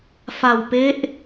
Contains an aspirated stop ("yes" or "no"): no